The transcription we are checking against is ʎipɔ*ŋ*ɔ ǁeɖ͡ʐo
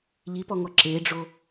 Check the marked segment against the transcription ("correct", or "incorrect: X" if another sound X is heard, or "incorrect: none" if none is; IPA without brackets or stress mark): correct